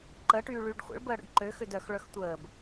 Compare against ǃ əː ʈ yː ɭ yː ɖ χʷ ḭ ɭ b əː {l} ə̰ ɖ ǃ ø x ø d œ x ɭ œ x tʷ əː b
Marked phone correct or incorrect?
incorrect